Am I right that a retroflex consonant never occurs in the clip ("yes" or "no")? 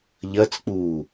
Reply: yes